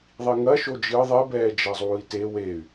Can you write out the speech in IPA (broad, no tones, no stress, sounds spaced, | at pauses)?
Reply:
ðˤ i ŋ ɐ ʃ o d͡ʒ ɨ ðˤ e b ɛː d͡ʒ ɐ zˤ uː i̯ t e w e y̯